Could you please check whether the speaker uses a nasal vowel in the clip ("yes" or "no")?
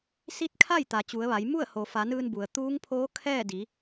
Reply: no